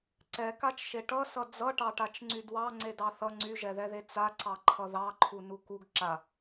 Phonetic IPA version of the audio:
ǀ ɛ k a t͡ʃ ʃ e ʈ ʌ s ʌ d͡z ʌ ʈ ɑ ʈ a t͡ʃ ŋ͡ǀ y d w ɑ ŋ͡ǀ e d ɑ θ ʌ ŋ͡ǀ y ʒ ɛ ð ɛ ð e t͡s a ǀ ɑ ǃʰ ʌ ð ɑ ǃʰ u n u k u ɡ ǁ a

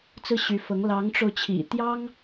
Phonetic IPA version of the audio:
t͡s ɹ̩˥˩ ɕ y˧˥ f ɤ˧˥ ŋ l ɑ˧˥ ŋ ʈ͡ʂ o˧ ʊ̯ t͡ɕʰ ḭ˨˩ t̪ j ɑ˥ ŋ

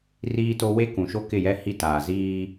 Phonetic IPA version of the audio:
r iː˦ t o˦ w e˦ k ũ˨ ʃ o˦ k ɪ˦˨ j ɛ˦ h i˦ t aː˨ z iː˦

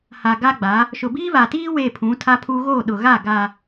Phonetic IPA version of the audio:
h a˨ ɡ a˦ ɡ͡b a˨˦ | ʃ ʊ˨ b iː˦ β a˨ t iː˦ w eː˦˨ pʰ ũ˨˦ tʰ a˦ pʰ u˦ ɣ o˦˨ ɗ ʊ˨ ɣ a˦˨ ɡ a˨

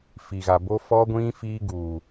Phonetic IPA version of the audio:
f i˨ ɣ a˨ b o˦ f ɔ˦ ɡʷ ĩ˦ f iː˦ ɡ uː˨

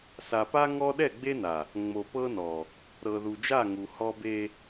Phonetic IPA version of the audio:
s a˨ p a˦ ŋ ɔ˦ ɗ ɛ˦˨ ɡ͡b e˦ n a˨ | ŋ͡m o˨ p ɤ˦ n ɔ˨ | ɾ ɤ˨ ð u˨ d͡ʒ a˦˨ ŋ u˨ h ɔ˦ b e˦

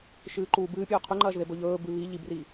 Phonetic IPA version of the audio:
ʃ ɨː ǃ uː b ɨː pʲ ɵː qʰ ʉ ŋ͡ǃ ɐː ʒ ð e b ɵ ʎ ɵː b ʉ β i ʎ i b r i

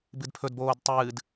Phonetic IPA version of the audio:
b ɨ d pʰ ɵ d b oː d tˤ ɨː d

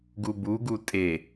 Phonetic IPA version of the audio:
ɡ u b u ɡ u tʼ e

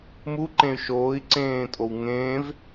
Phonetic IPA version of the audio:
m u ǃ ẽ y̯ ʃ oː i̯ ǀ ẽː tʼ o w ŋ ẽː v

